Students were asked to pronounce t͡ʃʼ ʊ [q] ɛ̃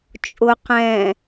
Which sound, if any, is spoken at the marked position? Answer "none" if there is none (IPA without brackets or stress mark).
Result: q